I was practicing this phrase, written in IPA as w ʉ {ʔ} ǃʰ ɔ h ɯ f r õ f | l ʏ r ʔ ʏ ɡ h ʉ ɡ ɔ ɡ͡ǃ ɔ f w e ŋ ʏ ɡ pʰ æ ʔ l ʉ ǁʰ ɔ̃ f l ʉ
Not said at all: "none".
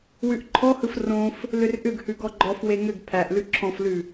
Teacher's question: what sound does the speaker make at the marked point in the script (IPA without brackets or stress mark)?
ʔ